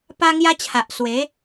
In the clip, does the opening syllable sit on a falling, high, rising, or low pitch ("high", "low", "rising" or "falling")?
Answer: high